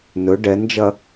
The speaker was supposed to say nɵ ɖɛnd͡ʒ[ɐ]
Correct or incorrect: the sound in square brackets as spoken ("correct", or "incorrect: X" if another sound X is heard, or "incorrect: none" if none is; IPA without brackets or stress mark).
correct